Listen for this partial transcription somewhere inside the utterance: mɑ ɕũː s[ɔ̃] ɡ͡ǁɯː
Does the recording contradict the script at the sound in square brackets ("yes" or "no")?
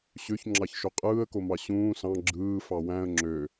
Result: yes